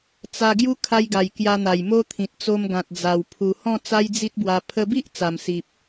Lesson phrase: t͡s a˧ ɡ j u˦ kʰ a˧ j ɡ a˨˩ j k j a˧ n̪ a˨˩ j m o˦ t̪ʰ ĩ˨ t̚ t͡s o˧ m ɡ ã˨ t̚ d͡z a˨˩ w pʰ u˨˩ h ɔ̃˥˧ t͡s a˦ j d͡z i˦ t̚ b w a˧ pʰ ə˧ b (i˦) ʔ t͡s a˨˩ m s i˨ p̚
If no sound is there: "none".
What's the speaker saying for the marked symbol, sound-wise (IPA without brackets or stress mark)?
i˦